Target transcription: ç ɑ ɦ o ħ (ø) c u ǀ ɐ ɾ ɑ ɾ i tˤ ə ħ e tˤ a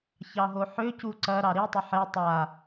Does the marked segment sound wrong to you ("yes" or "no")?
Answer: no